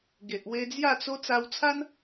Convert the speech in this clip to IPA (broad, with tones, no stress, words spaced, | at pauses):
ɡe˨ʔwe˧ d͡zja˥˧t͡so˦ t͡sa˧wt͡sʰa˦n